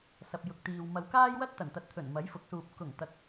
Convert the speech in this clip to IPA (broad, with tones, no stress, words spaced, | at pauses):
sɐ˨p̚jʊ˨k̚t̪iː˨w mɐ˨wkaː˥jwɐ˥t̚ t̪ɐ˨˩nt̪ɐ˨˥t̚t̪ʰɵ˨˩n mɐ˨˥jfʊ˨˥k̚suː˨p̚ kʊ˨˩ŋ t̪ɐ˨˥k̚